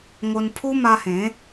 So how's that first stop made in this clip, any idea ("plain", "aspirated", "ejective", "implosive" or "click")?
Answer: aspirated